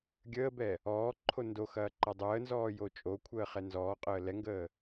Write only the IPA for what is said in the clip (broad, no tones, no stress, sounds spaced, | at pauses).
ɡʲ əː b ɛ | ɔː ǃʰ o n d o x ɐː ǃ ɐ dˤ əː n z ɔː j o t͡ʃʼ o kʷʰ əː χ ɛ n z ɔː qʼ əː l ɛ ŋ ɡ əː